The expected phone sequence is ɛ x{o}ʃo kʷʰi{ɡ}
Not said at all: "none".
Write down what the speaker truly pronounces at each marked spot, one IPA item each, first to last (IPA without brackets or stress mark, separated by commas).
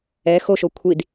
o, d